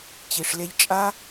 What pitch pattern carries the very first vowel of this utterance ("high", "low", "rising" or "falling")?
low